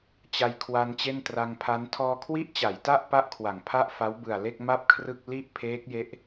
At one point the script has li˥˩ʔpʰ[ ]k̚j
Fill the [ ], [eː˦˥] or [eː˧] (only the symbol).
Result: eː˦˥